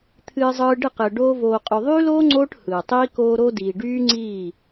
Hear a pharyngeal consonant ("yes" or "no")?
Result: no